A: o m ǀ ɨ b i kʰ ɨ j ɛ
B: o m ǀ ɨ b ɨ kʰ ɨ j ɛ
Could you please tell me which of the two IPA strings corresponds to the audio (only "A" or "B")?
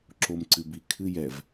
A